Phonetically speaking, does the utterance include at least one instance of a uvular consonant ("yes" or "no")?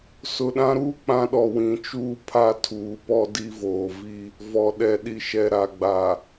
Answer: no